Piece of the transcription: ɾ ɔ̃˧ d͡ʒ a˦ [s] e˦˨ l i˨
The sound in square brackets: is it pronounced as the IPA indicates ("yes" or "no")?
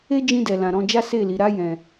yes